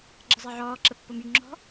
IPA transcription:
ɡ͡ǁ ə zˤ e ʕ ɔː ǁ ə pː o m y ŋ͡ǁ ɔ̤

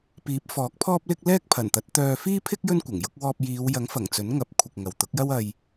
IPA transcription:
p iː˨˥ p̚ f ɔː˨˥ k̚ pʰ ɔː˥ p̚ l ɪ˥ k̚ l ɛː˥ k̚ pʰ ɐ˨˩ n t̪ ɐ˨˥ t̚ t̪ œː˧ f iː˥ pʰ ɪ˥ k̚ j ɵ˥ n kʷ ɐ˨˩ ŋ j ʊ˨˥ k̚ w ɔː˧ p̚ j iː˨˧ w j ɐ˨˥ ŋ f ɐ˨˩ ŋ t͡s ɵ˨˥ n ŋ ɐ˨˥ p̚ kʷʰ ɪ˨ k̚ ŋ ɐ˨ w t̪ ʊ˨˥ k̚ j ɐ˥ w ɐ˧ j

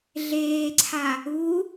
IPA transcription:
ɮ eː ǀʰ a | u

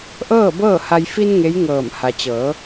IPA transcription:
ʔ ɤː˥˨ b ɤː˥˨ h a˧ j f i˧ n ŋ e˧˥ j ŋ ɤː˧˩ m h a˩ t͡ɕ ɤː˩˧

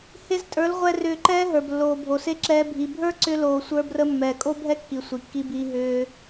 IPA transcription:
h e˧ z tʼ ə˞˨˦ l ʁʷ ɛ˧ r ʏː˧ ǃ ɛː˦ ɦ ə˞˨ b lː oː˨ bʱ o˨ s e˦ ǁ ɛː˧ bʱ i˨ bʱ ə˞˦ ǀ ʏ˦ l oː˧ sʷ ə˞˧ b r ə˧ mː ɛː˨ kʼ o˦ bʱ ɛ˦ kː i˨ sʷ i˨ kː i˧ b iː˧ ɦ ʏː˧

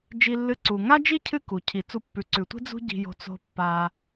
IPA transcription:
d͡ʒ i˦ lː ɨ˦ ǀ u˩ ŋ a˥ d͡ʒ i˥ cʰ ɨ˦ k u˩ cʰ i˩ t͡s u˨ pː ʉ˩ ǀ ʉ˩ tʷ i̤˦ d͡z ṳ˦ ɟ i̤˨ j o̤˨ t͡s o̤˨ pː a˨

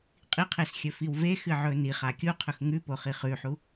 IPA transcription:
qʼ i qʰ e s xʲ ɵ f i w v e x ɨ ʕ ɵ n i χ a kʲ u qʰ ɵ x ŋ ʉ p o χ i χ ʉ ħ u

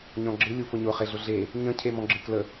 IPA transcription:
ɲ ɔ̃ ɡ͡ǁ ɨ lʲ u f ʊ ɲ ʊ χ e ɮ ʊ ɮ e | ɲ ə̃ cʰ e m ɔ̃ ɡ͡ǁ ɨ k l ə

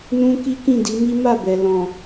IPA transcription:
n ũ˦ k i˦ k ĩ˦˨ d i˨˦ m i˦ m a˦˨ b ɛ˨ l ɔ̃˨

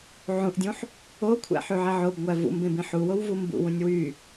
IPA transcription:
ʕ ũ ʔ dʲ ũ ħ | o kʷʰ æ̰ ħ y ʕ e ʕ o b ŋʷ æ v ṵ m b ẽ b ĩ ħ u w o w v u m b ṵ w ũ nʲ w y

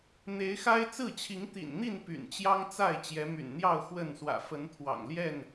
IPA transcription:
n̪ e˨˦ ɪ̯ x a˦ ɪ̯ t͡s ɹ̩˥˨ t͡ɕʰ i˨˦ ŋ t̪ ḭ˨˩ n n̪ i˥˨ n p y̰˨˩ n t͡ɕ j ɑ˦ ŋ t͡s a˥˨ ɪ̯ t͡ɕ j ɛ˨˦ m y̰˨˩ n n̪ j ɑ˥˨ ʊ̯ x w ə˥˨ n s w ä̰˨˩ f ə˨˦ n t̪ʰ w ɑ̰˨˩ ŋ l j ɛ˥˨ n

